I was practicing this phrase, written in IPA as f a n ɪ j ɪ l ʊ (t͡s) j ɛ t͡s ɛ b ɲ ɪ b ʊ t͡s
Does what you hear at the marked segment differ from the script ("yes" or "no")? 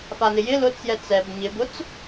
no